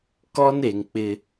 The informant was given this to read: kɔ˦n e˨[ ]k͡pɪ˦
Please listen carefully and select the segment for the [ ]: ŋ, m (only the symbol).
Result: ŋ